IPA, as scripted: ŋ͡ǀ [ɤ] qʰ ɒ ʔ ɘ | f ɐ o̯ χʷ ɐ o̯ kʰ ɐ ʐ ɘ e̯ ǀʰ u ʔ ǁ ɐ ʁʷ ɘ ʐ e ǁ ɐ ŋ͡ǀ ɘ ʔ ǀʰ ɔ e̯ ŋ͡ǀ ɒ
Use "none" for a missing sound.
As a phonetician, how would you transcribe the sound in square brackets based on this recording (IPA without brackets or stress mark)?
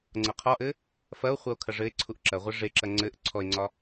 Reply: ɤ